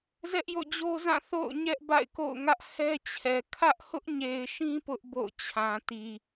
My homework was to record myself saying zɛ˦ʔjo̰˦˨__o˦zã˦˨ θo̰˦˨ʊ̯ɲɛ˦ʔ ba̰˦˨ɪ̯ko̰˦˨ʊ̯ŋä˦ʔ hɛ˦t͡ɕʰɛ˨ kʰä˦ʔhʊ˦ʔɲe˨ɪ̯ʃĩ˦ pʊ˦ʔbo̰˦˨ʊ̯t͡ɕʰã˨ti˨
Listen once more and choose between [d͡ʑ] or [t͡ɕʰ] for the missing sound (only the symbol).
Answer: d͡ʑ